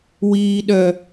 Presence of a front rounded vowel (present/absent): present